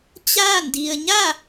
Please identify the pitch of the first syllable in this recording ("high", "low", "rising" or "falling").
falling